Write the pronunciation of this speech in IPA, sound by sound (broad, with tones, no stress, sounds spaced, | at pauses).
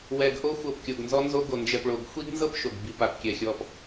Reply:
w ɛ˨ ɡ ʔ o˧ xʷ ɤ˨ p kʲ o˨ ɡ n z ɔ˧ n z o˧ ɡ o˨ n d͡ʒ ɛ˨ p ɭ o˨ ɡ xʷ i˦ ɡ n z ɤ˦ p ʃ o˨ ɡ b i˨ p a˨ p kʲ ɛ˨ xʲ ɔ˨ p